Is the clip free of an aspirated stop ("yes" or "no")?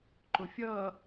yes